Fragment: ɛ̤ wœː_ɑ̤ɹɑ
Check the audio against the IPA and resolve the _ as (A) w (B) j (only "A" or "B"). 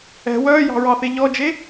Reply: B